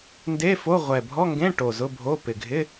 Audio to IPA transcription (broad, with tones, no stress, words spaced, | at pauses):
nde˧˥˧ fo˧˥˧ ʁʷɛ˨˩bʱɔ˧˥˧ ŋɡẽ˧˥˧ ʈo˨˩zʊ˧˥˧ bʱo˧˥˧ pɪ˨˩ɡʱɪ˧˥˧